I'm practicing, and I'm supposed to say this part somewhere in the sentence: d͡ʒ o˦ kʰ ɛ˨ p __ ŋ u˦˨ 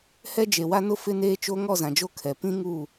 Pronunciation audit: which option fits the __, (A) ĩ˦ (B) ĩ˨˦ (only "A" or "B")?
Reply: A